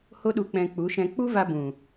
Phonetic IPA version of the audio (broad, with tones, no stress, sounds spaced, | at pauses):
h o˧ ɗ u˨ k͡p ɛ̃˨ k͡p u˨˦ ʃ ɛ̃˧ k͡p u˦ v a˧ b ũ˨